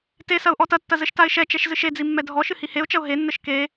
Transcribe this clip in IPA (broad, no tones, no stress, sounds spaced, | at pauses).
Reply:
t e s ɐ ʊ̯ ʔ ɔ t ɐ tː ɐ z ɘ ʃ t a ɪ̯ ʃ ɛ t͡ʃ ɛ ʃ z ɨ ʃ e d͡z i mː ɛ dʱ ɔ ʃ ɨ h i h e ʊ̯ t͡ʃ ɐ ʊ̯ ɦ e nː ɘ ʃ k e